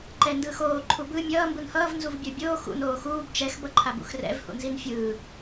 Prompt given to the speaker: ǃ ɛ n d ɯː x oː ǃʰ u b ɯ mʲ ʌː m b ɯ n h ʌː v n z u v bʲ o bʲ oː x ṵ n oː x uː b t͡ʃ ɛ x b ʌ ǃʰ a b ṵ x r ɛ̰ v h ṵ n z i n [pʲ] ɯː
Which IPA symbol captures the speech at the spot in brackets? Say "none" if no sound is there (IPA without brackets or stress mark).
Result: fʲ